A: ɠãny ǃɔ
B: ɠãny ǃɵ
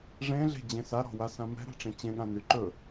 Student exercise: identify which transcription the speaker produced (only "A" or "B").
B